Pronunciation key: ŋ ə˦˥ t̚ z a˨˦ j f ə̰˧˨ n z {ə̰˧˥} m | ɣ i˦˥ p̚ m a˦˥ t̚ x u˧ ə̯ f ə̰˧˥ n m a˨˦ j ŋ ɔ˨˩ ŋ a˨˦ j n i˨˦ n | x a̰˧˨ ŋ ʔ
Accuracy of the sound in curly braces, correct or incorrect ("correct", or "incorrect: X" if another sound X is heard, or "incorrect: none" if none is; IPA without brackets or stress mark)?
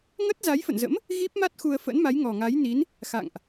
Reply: correct